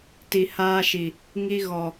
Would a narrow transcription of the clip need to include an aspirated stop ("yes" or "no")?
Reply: no